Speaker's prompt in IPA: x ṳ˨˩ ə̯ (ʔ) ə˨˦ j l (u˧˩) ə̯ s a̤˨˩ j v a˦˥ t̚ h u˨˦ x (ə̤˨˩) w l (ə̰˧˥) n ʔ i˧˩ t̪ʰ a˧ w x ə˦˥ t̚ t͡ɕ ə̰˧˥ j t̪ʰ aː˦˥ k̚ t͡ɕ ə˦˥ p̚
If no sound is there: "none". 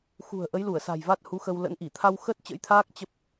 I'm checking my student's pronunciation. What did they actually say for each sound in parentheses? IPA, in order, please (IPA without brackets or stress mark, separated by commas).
ʔ, u˧˩, ə˧, ə̰˧˥